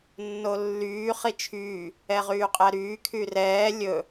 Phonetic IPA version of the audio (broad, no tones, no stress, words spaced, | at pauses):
nːolːyː χit͡ʃʰyː | ɛʁyːqʼæɾyː kʰyrɛː lʲɵ